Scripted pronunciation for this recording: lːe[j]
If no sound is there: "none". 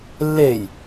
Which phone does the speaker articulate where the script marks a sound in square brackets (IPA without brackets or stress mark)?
j